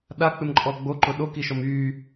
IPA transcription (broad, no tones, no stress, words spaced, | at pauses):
ɗak͡pɪmǃʼɔ ɡ͡boǃʊ ɗokiʃɔm y